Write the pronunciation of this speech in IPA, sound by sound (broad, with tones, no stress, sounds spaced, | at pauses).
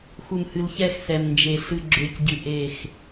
x u˨ m h ɨ˨ l ç ɛ˦˨ x s ɛ˨ m n d͡ʒ e˨ ɬ ɨ˨ ɡ͡ǁ ø˨˦ c ɟ ɨ˨ ʔ e˦˨ x